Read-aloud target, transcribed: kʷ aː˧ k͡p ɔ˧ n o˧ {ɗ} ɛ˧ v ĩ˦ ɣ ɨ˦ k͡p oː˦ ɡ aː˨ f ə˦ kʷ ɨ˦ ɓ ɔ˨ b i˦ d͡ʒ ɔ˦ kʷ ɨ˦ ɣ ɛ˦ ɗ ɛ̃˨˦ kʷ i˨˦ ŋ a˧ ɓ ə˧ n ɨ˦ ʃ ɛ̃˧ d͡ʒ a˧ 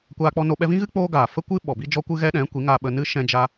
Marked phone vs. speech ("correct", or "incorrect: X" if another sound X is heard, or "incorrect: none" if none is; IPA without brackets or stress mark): incorrect: ɓ